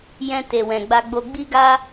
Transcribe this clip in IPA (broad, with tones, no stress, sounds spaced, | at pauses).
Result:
j ɛ̃˧ t e˨ w ɛ̃˨ ɡ͡b a˧ ɡ͡b o˧ ɡ͡b i˦ ɡ a˦